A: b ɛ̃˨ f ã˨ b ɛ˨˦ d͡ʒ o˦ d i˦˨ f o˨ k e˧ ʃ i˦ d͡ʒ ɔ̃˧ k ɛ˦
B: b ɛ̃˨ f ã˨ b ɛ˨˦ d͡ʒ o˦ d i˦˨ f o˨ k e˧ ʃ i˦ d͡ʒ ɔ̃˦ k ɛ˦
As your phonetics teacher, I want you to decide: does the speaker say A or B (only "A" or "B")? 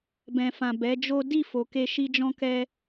B